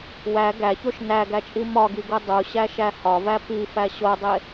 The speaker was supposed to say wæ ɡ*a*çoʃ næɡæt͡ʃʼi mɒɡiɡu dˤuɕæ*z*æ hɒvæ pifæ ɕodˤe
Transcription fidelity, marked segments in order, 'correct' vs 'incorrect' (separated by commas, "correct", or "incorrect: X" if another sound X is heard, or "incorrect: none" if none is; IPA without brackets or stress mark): incorrect: æ, incorrect: ʃ